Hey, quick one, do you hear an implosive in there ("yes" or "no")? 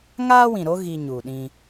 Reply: yes